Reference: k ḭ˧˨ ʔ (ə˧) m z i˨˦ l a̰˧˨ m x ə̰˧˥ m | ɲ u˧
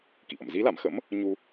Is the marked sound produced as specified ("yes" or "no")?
no